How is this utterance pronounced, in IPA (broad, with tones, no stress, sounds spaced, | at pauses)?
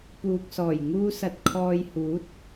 p uː˨ k̚ s ɔː˨˩ j ŋ uː˧ s ɐ˨ t̚ kʰ ɔː˧ j h uː˨˥ t̚